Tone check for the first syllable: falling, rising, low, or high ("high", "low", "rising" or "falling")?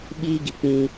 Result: high